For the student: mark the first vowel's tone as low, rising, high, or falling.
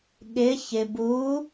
rising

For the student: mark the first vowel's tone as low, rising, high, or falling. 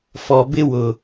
low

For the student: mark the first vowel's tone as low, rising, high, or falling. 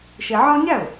low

